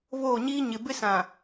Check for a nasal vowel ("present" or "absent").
present